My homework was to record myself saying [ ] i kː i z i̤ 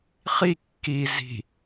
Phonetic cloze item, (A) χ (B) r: A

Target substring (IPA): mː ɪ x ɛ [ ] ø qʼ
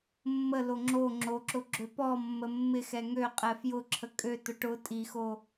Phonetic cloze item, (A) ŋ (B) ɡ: A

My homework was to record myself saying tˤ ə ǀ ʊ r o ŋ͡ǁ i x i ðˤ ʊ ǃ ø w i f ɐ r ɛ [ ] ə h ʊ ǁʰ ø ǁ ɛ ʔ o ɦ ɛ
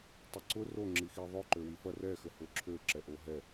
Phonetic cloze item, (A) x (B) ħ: A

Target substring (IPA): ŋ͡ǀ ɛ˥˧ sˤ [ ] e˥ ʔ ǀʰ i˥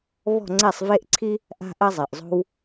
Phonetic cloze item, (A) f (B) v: B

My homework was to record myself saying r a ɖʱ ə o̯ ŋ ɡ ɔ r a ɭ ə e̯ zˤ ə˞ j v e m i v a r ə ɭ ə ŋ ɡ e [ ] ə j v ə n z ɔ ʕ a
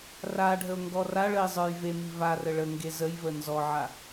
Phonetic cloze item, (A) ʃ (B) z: B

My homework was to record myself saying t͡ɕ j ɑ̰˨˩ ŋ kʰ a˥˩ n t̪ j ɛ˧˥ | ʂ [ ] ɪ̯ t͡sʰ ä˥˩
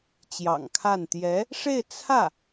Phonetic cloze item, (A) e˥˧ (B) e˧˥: A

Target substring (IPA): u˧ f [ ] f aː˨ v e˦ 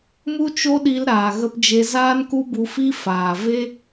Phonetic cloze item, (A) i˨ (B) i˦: B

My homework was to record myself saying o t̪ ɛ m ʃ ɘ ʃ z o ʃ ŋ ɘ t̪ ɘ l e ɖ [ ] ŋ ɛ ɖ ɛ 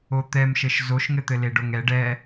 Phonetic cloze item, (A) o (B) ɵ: A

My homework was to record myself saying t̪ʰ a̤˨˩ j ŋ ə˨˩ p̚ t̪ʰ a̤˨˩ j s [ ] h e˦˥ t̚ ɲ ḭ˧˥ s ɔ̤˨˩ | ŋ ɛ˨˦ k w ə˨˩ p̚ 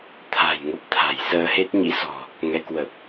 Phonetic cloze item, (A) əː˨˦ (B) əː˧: B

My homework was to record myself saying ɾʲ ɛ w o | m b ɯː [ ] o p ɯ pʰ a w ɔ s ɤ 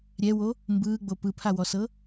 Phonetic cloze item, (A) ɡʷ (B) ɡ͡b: B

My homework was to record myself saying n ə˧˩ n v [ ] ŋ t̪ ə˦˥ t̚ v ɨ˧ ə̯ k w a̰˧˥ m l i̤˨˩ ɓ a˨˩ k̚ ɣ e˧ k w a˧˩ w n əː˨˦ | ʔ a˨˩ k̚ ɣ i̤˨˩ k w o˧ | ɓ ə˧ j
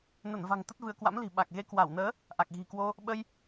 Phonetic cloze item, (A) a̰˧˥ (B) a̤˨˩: B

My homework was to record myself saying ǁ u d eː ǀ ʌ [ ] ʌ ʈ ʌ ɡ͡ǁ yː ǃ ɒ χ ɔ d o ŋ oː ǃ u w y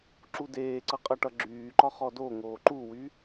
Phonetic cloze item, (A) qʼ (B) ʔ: A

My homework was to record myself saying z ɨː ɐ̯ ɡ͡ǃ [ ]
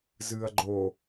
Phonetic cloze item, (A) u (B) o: B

